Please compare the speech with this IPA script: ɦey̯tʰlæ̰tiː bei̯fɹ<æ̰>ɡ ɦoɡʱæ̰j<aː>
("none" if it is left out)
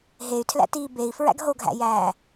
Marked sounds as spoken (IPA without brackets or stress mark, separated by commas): æ̰, æː